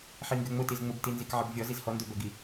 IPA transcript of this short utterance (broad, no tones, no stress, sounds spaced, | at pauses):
ħ i ŋ ɡ ø ŋ͡m ʊ t i z ŋ͡m ʊ b t i n z i k ʕ ɪ b vʲ ɔ z i z h ɔ n d ø b œ ɡ i